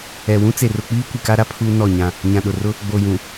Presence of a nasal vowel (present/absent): present